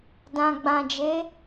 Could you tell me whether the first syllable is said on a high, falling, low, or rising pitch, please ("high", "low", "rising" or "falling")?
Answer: low